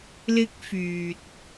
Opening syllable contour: high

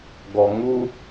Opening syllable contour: low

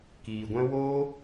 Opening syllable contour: low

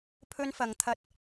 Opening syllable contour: high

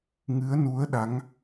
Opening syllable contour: rising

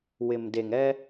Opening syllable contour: low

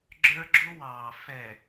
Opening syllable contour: high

